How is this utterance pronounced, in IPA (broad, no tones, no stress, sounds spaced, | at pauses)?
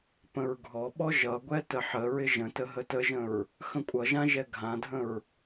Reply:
p ə̃ ɹ ɡʱ ɔ ɓ ɔ ʒ ʌ ɡʷ ɛ t ə ħ ə ɹ ɪ ʒ ə̃ t ə ɦ ə t ə ʒ ə̃ ɹ | x ə̃ kʷʼ ʌ ʒ ã ʒ ɛ ɡʱ ã dʱ ə̃ ɹ